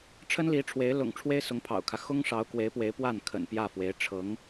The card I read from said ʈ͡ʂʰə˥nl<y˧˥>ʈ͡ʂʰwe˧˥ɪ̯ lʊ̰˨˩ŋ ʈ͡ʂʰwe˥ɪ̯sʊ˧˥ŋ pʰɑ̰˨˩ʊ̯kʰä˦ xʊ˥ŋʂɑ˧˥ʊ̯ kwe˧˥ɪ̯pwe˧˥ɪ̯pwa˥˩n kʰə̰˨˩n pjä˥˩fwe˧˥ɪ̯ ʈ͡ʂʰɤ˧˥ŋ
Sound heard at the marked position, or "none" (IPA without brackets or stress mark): i˧˥